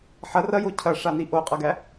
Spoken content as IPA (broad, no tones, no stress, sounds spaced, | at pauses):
ħ ɐ r ɐ j o cʰ ɐ ʂ a n i ʔ o qʼ ɐ ɡ æ